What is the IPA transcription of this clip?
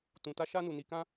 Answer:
tũ˨ta˧ʃa˧ nu˨ni˨kã˧

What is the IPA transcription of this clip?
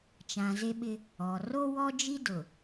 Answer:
t͡ʃã˨ze˦ɓɪ˦ | ɔ˨ ro˦wɔ˦d͡ʒi˦dʊ˨

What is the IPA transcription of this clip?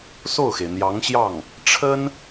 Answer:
so˥˩ʊ̯xe˩ɪ̯n̪jɑ˧˥ŋɕjɑ˥˩ŋ | ʈ͡ʂʰə˥n

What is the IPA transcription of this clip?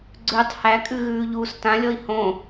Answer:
ɡ͡ǀʉtˤ hækʼʉɣʉːʎuːs tãlʲɔi̯ hõ

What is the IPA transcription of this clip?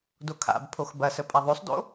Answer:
dokʰa̰bpʰox bɐsə pʼaðˤosˤdo̰

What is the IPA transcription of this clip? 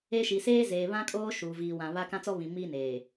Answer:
e˦ʃi˨ seː˦zeː˨βã˦kʼoː˦ ʃuː˨ viː˨wã˨ βa˦ kã˦t͡sɔ˦ βĩ˨ miː˦neː˨

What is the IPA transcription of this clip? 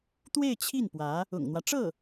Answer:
t̪we˥˧ɪ̯t͡ɕʰi˥˩npwä˧˥ | ʊ̰˨˩ŋn̪wä˦ʈ͡ʂɤ˥˩

